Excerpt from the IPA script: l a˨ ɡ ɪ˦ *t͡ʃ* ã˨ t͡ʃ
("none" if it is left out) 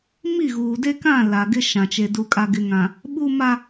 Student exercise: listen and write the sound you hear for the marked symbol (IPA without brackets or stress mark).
ʃ